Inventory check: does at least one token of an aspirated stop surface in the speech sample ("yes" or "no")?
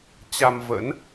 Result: no